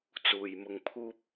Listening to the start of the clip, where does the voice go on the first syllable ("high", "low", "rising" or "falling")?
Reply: low